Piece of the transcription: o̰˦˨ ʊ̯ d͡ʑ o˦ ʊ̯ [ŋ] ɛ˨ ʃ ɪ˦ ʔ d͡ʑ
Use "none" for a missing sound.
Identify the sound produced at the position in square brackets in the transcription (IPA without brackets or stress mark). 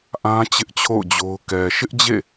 k